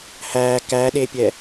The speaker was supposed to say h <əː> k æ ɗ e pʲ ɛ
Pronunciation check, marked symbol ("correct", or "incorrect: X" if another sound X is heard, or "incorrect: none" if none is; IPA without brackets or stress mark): incorrect: æː